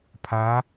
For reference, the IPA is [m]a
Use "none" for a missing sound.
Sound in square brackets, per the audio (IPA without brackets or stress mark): pʰ